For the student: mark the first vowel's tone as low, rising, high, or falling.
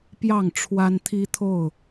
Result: falling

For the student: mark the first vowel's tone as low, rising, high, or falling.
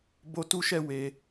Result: high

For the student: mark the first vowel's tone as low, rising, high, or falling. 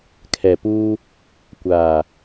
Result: low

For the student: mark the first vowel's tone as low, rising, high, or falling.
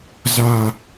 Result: low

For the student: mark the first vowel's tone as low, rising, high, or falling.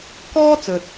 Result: high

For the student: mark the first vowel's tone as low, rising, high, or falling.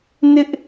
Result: high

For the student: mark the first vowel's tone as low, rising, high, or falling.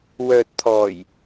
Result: low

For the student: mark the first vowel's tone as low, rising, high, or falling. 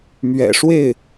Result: low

